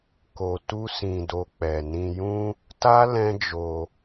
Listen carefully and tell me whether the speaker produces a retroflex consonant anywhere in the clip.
no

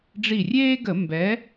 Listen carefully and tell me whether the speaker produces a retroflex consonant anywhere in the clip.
yes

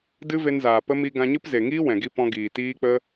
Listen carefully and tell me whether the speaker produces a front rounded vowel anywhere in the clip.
no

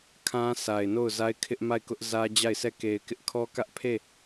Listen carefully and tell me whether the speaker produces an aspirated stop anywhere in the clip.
yes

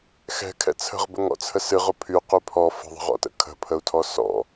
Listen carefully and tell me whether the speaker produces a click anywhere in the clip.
no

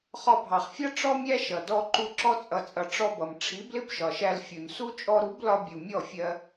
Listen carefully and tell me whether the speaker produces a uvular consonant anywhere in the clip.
yes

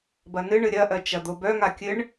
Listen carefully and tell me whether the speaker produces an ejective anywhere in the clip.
no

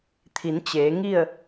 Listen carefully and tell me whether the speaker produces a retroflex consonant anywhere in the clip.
no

